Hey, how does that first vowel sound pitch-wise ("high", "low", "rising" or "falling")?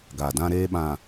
low